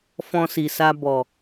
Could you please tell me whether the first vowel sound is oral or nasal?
nasal